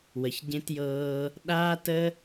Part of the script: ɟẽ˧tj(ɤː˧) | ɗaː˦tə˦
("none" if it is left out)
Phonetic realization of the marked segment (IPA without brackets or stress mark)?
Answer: ɤː˧